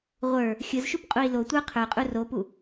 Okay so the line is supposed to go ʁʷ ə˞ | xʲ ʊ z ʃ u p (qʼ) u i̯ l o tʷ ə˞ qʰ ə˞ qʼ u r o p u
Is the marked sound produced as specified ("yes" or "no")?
yes